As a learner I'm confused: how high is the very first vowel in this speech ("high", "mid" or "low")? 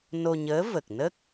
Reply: mid